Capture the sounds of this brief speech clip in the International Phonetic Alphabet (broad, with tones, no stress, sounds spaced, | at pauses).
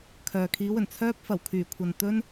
kʰ œː˨ kʰ iː˨˧ w ɵ˨˩ n t͡sʰ œː˧ p̚ f ɐ˨˩ w kʰ yː˨˩ kʷʰ ɐ˨ n t̪ ɵ˥ n